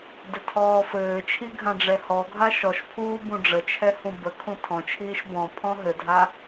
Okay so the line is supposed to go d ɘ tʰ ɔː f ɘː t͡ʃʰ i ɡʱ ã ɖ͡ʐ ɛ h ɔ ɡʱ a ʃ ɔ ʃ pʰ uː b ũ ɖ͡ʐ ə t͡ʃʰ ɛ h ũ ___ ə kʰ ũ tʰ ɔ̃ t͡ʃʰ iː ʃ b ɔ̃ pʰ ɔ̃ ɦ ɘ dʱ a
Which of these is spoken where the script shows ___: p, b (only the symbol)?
b